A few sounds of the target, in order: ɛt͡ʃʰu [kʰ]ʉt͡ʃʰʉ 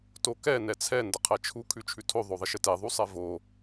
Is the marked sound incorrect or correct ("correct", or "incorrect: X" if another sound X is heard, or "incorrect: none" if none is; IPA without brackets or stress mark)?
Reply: correct